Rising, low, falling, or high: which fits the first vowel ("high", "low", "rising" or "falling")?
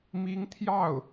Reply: rising